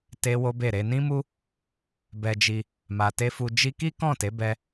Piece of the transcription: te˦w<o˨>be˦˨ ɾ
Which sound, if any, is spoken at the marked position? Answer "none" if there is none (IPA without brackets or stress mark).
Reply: o˦